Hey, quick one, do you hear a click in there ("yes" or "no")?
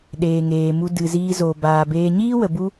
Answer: no